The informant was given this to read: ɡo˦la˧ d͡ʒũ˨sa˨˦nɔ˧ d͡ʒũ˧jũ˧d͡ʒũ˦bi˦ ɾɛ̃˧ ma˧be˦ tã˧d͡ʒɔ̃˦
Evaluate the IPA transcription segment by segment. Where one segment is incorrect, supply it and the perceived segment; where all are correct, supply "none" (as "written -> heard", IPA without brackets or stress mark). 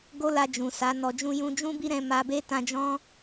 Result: none